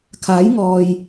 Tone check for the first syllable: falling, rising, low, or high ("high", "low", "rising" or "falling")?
rising